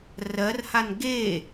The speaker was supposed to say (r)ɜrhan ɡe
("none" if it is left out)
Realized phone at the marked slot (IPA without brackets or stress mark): r